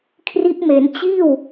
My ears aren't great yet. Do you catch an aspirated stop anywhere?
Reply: yes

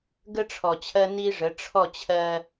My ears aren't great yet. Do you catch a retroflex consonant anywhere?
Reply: yes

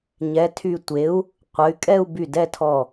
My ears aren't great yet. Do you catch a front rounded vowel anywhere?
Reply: yes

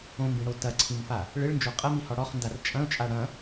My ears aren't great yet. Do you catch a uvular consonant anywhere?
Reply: yes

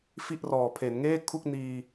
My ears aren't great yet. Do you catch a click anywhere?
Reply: no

